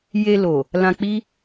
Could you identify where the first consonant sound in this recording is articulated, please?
palatal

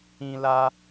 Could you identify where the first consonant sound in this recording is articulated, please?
alveolar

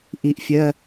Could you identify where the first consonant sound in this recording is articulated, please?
glottal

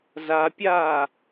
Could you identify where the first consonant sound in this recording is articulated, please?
alveolar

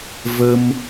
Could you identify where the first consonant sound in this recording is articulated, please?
labial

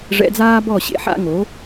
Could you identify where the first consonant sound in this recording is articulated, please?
retroflex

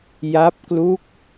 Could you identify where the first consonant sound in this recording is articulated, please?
palatal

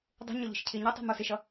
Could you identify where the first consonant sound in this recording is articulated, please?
alveolar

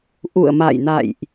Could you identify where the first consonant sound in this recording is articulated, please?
glottal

